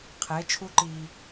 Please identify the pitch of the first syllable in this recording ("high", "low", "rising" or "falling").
rising